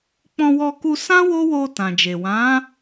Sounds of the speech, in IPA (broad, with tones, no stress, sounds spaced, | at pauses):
k͡p ɔ̃˧ w ɔ˧ k u˧ s ã˦ w o˦ w o˧ t ã˨ d͡ʒ e˨ w ã˨˦